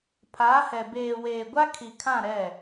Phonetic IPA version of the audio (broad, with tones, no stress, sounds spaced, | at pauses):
pʰ aː˨˦ h ɛ˨ b eː˨ w eː˨ ɡʷ a˦ kʰ i˨ kʰ ã˦˨ ɾ ɛ˦˨